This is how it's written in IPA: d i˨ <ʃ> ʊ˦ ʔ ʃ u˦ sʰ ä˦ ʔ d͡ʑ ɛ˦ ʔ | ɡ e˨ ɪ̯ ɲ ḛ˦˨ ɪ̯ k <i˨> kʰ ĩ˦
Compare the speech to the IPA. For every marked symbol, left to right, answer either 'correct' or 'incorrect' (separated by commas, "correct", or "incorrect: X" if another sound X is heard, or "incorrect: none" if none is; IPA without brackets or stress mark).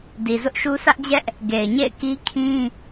incorrect: z, incorrect: i˦